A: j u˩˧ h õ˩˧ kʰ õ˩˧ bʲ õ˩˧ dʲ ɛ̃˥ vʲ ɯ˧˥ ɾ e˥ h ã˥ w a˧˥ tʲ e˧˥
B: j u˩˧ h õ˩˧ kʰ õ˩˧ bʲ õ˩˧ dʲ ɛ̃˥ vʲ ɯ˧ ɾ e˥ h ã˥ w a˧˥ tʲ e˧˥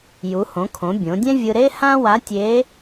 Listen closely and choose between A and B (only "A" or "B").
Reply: B